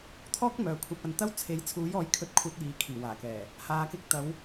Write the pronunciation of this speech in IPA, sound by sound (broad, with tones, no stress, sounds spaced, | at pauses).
t̪ʰ ɔː˥ k̚ m œː˨ kʷʰ ɐ˧ p̚ ɐ˧ n t̪ ɐ˥ w t͡sʰ e˨˥ j t͡sʰ uː˨˥ j ɔː˨˥ j kʰ ɵ˧ t̚ kʷʰ ɐ˧ t̚ j iː˨˧ kʰ iː˨˩ w aː˨˩ k ɛː˨˩ | h aː˨ k ɪ˧ k̚ t̪ ɐ˨˧ w